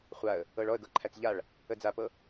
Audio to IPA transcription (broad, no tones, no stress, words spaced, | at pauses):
χʷaə̯ | ɤɭɔə̯ ɡɤǃʰæt͡sʎaɭ | əd͡zapɤ